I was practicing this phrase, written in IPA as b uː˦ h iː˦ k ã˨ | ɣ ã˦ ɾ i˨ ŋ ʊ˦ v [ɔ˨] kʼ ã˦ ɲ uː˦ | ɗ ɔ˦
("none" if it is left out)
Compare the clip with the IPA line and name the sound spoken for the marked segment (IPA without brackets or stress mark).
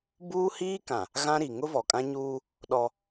ɔ˨